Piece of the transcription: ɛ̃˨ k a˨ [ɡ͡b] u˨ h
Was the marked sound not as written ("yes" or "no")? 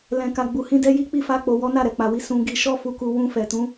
no